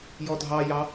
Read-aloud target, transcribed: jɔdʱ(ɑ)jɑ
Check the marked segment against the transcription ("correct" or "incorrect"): correct